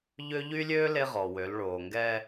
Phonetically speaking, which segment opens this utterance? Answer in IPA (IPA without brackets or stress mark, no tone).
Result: ʎ